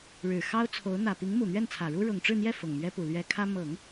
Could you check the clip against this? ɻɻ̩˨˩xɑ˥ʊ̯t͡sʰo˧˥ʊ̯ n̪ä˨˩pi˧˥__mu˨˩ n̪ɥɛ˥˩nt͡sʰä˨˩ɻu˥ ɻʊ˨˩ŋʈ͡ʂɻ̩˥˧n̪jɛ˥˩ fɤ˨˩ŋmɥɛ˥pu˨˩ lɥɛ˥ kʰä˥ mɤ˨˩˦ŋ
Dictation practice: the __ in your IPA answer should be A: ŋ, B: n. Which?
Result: A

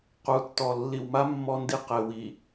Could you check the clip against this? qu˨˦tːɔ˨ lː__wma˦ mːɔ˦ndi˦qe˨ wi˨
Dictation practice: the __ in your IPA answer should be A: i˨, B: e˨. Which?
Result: A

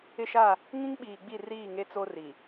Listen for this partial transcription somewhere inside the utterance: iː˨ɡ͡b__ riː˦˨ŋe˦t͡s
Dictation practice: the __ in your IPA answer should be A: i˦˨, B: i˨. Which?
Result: A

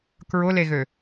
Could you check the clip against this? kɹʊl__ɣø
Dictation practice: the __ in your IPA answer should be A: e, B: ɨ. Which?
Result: A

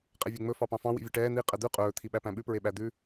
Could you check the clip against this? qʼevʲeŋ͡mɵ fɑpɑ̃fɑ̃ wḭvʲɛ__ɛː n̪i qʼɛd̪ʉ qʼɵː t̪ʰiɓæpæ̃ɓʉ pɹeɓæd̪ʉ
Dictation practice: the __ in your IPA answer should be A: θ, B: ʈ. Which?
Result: B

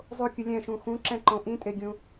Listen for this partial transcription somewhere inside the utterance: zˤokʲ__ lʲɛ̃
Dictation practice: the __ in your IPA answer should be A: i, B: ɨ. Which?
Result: B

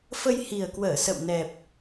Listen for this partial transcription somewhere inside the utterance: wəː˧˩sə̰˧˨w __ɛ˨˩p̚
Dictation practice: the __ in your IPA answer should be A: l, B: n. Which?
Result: B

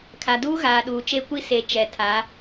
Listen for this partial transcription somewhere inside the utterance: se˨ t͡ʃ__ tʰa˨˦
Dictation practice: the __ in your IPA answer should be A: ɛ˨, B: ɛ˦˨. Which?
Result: A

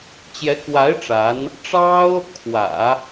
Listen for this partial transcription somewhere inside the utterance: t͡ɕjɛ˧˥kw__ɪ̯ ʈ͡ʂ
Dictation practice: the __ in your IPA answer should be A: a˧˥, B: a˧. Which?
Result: A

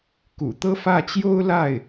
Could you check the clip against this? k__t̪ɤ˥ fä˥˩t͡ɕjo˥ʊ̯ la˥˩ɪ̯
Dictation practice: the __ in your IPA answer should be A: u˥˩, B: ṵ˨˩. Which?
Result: B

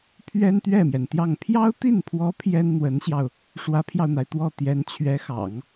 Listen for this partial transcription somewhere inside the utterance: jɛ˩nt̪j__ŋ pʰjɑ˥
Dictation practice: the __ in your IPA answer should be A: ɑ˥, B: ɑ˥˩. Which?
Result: B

